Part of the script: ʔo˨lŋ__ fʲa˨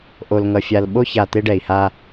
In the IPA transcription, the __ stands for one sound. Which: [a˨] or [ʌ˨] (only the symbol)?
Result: ʌ˨